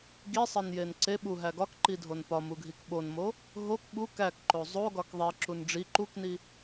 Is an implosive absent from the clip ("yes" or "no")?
no